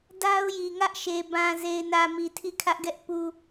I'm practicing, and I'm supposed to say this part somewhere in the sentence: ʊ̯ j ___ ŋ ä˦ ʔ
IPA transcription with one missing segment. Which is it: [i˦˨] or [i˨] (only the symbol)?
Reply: i˨